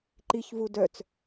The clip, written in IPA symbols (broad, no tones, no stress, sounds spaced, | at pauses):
ǃ i ç v u d œ t͡s